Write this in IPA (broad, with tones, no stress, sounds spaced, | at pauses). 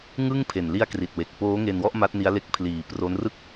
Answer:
ŋ ɯ˥˩ ŋ pʰ e˨˩ n l i˧ a̯ k r i˨˩ t̚ w e˨˩ k̚ p oː˦˥ ŋ e˧ n w ɔ˥˩ ʔ m a˦˥ t̚ n i˦˥ a̯ l e˦˥ k̚ pʰ l iː˨˩ p r o˦˥ n r ɯ˥˩ k̚